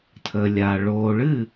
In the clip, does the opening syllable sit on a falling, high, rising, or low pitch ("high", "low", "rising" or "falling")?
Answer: low